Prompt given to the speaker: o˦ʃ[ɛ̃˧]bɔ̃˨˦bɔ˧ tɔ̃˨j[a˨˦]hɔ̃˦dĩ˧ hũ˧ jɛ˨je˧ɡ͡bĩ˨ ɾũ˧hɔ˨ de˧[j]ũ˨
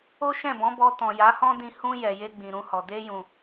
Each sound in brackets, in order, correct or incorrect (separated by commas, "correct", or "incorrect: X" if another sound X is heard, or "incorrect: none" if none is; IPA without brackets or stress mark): incorrect: ɛ̃˦˨, correct, correct